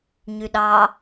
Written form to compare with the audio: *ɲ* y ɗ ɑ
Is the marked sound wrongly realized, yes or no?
no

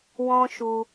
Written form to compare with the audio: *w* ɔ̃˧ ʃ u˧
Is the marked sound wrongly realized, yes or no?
no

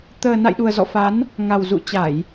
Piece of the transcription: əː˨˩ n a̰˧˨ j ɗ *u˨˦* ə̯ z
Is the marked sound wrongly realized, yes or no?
yes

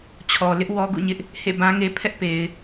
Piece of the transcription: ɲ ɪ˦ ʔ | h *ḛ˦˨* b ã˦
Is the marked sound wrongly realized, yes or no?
no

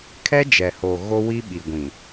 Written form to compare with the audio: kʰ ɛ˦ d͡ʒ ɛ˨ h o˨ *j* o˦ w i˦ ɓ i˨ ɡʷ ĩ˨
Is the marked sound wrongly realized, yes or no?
yes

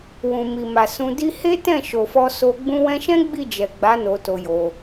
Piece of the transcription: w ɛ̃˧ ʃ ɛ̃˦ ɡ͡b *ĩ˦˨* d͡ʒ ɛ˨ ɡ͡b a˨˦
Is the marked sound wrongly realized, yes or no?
yes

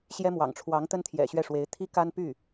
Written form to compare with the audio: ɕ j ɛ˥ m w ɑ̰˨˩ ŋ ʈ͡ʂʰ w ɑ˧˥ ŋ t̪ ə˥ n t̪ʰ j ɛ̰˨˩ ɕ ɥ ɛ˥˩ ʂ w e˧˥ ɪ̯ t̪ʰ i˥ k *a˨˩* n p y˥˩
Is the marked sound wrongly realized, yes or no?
yes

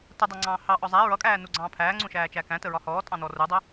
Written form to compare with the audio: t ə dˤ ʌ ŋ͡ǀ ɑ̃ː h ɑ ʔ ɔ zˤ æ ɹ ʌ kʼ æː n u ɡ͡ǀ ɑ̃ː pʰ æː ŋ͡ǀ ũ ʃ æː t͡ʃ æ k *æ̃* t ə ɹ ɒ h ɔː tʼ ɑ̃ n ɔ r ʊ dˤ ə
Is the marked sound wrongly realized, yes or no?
no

